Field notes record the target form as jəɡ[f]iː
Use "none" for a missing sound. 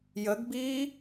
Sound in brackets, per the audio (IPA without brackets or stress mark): b